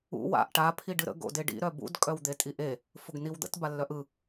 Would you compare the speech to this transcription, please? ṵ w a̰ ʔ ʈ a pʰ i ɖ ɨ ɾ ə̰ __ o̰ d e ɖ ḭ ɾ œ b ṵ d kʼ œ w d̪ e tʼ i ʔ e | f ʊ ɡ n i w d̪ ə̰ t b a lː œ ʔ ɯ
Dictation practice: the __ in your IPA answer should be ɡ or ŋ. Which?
ɡ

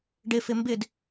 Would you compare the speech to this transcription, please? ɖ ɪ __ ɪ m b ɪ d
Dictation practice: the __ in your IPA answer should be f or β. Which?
f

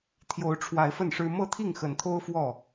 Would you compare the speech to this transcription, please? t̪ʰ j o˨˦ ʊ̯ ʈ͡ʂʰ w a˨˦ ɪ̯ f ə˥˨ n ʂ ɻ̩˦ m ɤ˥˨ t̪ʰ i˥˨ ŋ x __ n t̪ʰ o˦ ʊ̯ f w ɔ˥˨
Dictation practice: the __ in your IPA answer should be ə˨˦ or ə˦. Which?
ə˨˦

